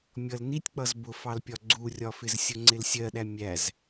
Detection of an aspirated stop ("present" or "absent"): absent